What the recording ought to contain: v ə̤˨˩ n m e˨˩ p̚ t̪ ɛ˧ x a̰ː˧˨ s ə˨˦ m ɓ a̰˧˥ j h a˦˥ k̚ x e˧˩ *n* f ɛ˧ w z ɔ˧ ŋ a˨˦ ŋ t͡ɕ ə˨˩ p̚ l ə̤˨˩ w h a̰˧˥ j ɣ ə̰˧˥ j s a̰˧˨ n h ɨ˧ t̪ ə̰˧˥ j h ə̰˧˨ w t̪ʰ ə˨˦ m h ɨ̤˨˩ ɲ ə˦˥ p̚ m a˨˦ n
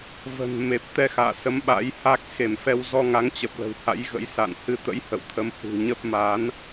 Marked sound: incorrect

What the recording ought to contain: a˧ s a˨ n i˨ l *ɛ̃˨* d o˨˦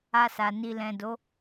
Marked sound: correct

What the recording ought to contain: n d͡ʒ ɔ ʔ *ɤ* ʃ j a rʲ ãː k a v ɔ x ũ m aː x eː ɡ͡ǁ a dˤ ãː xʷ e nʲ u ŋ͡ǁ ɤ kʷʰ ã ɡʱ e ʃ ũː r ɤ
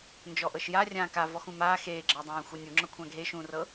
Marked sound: correct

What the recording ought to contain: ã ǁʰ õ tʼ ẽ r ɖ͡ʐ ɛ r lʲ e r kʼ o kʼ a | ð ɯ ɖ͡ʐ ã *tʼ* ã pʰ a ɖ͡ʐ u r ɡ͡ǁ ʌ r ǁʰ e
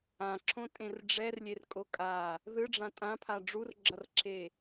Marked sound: correct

